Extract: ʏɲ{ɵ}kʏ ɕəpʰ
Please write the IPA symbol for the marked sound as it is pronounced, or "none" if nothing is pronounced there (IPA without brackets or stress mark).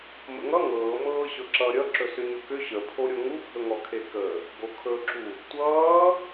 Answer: ɵ